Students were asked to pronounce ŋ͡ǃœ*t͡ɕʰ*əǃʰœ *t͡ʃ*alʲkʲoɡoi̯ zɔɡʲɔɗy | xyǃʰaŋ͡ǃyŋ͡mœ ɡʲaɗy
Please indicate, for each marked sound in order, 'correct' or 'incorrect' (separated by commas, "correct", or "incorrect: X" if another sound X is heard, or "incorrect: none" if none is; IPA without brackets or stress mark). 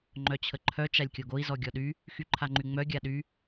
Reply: correct, correct